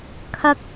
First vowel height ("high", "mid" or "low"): low